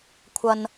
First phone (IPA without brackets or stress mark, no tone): kʷʰ